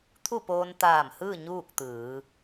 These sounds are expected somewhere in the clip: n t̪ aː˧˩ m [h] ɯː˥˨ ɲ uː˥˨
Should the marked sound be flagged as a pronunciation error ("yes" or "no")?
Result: no